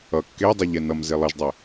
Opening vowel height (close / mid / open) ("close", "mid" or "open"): mid